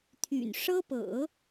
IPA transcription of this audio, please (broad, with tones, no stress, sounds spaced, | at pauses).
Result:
t̪ʰ y̰˨˩ n ʂ ɤ˥ p ɤ̰˨˩˦